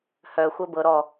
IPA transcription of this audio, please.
hœ xʷɜbɤ ɾɔ

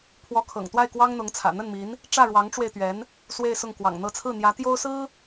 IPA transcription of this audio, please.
pʰwɔ˧˥kʰɤ̰˨˩ŋt̪wa˥˩ɪ̯ kwɑ˥ŋn̪ʊ˧˥ŋt͡sʰä̰˨˩ n̪ə˥˩nmi˧˥n | ʈ͡ʂä˥˩ɻwɑ˧˥ŋʈ͡ʂwe˧ɪ̯t̪ɥɛ˧˥n | swe˥˧ɪ̯sʊ˥˩ŋ kwɑ̰˨˩ŋn̪ɤ˧˥t͡sʰɹ̩˥˩n̪jä˧˥ t̪jo˥ʊ̯sɹ̩˥

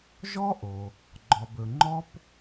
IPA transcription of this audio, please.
ʒɔ˥ʔo˩ | ɡ͡ǃɔ˩bɵ˩ ŋ͡ǃɔ˥p

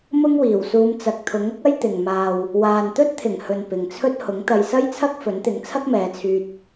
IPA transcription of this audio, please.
mʊ˥ŋwiː˨˩wsuː˧m t͡sɐ˨k̚t̪ʰʊ˨˥ŋ ʊ˥k̚ɐ˥j t̪ɪ˨ŋ maː˨w | waː˨nt̪ɵ˥t̚t̪ʰɪ˨˩ŋ hɵ˨n pɪ˨ŋt͡sʰɵ˥t̚ hʊ˨˥ŋt̪ɐ˧j sɐ˥jt͡sʰɐ˥k̚ fɵ˨˥nt̪ɪ˨˥ŋ t͡sʰɐ˥k̚mɛː˨˧t͡sʰyː˧t̚

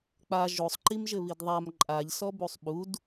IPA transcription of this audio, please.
k͡pa ʒosˤǃimʒɘβid ðˤam ǃʼaʎsɔbusˤ ɓud

